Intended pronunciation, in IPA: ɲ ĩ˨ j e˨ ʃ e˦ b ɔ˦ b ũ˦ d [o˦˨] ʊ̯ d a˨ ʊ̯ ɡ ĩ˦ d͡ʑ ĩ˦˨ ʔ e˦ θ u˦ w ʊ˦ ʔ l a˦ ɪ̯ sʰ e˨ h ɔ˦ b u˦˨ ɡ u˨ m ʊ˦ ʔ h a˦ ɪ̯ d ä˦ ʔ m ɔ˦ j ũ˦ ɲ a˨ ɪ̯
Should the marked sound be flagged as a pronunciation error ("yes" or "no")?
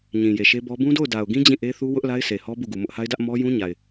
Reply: no